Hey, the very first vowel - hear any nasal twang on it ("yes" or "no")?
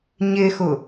no